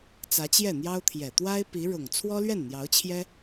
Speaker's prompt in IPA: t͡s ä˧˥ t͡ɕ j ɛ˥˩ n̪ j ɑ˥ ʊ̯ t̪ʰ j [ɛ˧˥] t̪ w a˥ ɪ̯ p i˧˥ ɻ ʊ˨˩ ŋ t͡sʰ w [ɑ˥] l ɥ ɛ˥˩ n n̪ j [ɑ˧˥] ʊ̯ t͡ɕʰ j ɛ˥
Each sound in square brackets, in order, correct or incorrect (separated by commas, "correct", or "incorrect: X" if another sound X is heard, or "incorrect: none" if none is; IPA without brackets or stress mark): incorrect: ɛ˨˩, incorrect: ɔ˥, correct